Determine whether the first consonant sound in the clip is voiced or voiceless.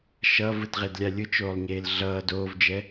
voiceless